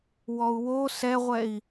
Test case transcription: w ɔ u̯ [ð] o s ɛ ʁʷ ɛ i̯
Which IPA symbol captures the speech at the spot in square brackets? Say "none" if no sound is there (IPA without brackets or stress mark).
w